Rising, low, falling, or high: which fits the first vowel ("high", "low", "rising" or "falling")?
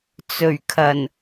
low